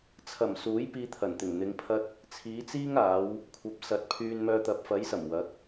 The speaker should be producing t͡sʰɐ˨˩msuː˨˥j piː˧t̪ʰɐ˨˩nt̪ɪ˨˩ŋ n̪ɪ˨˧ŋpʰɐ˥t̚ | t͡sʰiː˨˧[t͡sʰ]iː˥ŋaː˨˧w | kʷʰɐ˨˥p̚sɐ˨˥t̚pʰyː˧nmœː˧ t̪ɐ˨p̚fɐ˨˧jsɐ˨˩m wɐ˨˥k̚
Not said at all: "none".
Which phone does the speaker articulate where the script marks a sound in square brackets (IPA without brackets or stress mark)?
t͡s